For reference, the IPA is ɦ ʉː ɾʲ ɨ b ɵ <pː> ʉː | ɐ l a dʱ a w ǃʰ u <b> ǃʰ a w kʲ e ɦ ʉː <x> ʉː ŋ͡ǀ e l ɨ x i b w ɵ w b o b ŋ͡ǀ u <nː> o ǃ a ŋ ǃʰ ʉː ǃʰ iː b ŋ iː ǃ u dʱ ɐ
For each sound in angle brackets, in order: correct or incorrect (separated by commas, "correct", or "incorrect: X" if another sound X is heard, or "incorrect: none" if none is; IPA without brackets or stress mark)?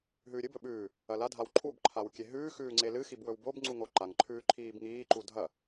incorrect: ɓ, correct, correct, incorrect: ŋ